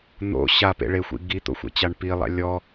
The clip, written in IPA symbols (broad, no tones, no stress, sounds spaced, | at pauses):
n̪ o̰ ɕ a p ḛ ɭ e xʷ ḭ ɡ i t̪ o̰ xʷ ḛ t͡ɕ a ɳ p i lˠ a̰ lʲ ɔ